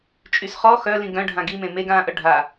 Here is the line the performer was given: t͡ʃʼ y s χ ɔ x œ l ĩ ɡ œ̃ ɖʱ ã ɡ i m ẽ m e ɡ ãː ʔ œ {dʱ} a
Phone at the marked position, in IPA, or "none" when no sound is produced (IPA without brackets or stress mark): ɖʱ